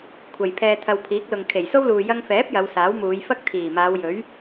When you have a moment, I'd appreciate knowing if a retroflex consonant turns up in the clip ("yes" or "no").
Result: no